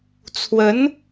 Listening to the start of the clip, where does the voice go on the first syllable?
rising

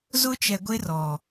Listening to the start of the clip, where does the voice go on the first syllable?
high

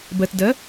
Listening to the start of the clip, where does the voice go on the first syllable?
low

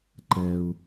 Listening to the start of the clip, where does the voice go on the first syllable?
low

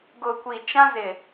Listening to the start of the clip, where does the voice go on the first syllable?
low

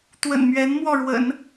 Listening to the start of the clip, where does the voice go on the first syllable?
low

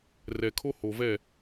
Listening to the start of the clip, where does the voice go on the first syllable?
low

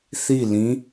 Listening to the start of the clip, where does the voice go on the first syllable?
falling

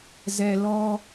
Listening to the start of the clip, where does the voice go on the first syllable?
low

